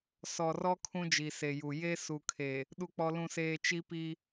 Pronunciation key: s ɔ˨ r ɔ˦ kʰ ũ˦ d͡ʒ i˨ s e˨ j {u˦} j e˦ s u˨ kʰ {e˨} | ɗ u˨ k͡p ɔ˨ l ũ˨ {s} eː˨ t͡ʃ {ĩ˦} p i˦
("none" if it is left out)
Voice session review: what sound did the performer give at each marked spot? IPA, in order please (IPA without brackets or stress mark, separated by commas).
u˨, e˨, s, i˦